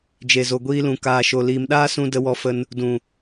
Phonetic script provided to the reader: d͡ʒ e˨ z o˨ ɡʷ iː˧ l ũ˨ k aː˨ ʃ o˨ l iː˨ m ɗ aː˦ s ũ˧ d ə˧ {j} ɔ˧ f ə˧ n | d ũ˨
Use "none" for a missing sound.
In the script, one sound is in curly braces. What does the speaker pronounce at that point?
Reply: w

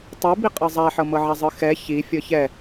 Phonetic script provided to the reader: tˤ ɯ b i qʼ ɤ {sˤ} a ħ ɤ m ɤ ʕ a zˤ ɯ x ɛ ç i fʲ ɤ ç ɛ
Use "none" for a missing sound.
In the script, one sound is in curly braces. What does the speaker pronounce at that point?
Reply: zˤ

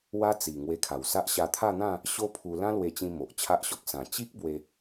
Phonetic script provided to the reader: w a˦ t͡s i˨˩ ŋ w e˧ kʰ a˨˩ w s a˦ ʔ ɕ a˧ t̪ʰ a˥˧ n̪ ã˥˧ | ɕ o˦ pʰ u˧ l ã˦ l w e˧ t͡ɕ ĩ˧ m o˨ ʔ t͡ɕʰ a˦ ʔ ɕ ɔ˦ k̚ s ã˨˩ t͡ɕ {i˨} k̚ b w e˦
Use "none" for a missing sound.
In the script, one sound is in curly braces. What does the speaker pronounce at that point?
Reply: i˦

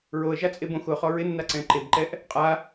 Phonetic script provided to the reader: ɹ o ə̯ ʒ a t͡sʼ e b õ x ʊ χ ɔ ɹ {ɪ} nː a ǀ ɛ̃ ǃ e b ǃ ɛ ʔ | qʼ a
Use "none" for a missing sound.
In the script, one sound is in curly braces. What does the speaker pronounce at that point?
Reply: ɪ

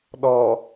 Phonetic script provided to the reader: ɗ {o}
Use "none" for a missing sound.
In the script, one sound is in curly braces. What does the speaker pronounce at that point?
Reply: ɔ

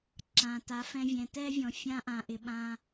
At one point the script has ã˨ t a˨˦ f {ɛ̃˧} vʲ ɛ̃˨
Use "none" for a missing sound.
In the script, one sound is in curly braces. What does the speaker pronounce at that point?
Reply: ɛ̃˧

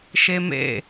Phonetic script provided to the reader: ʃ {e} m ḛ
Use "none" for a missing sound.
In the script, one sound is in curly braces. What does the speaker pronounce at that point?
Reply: e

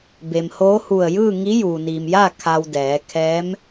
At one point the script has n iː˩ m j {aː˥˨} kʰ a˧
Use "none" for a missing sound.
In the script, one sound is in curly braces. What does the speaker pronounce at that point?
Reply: aː˥˨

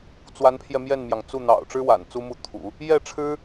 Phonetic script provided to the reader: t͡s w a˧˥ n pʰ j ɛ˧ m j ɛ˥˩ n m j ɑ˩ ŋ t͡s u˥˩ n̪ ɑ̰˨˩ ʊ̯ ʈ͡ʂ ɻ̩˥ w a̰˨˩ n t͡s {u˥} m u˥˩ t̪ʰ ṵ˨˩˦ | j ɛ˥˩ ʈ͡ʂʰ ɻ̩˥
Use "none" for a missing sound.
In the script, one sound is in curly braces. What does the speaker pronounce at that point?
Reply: u˥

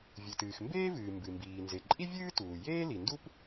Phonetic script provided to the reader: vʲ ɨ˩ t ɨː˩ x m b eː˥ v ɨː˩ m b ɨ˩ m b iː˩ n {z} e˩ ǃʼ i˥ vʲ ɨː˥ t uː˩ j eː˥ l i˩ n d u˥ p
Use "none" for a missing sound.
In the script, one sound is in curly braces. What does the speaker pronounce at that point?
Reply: z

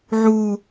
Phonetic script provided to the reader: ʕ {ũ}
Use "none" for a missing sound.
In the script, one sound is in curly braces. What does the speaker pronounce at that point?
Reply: u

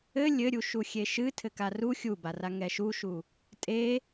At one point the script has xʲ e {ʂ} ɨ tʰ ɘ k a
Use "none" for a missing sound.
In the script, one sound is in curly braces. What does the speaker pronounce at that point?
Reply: ʃ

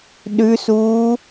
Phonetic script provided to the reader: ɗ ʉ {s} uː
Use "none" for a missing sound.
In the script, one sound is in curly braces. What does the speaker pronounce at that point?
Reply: s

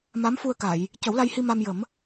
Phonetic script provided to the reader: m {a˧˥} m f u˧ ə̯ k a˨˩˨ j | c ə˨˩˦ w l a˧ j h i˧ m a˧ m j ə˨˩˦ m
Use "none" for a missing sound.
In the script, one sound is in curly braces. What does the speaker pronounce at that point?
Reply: a˧˥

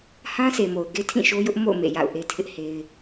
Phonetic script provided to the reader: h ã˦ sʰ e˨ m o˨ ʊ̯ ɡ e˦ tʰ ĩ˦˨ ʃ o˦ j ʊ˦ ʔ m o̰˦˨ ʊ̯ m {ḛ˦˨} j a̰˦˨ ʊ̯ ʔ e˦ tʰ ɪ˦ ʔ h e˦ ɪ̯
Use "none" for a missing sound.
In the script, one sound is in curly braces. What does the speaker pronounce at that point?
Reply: ḛ˦˨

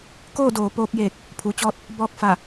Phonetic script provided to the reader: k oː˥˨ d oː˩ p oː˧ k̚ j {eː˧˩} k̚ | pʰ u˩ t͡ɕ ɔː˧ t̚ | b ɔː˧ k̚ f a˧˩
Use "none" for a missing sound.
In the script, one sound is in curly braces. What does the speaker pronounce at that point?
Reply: eː˧˩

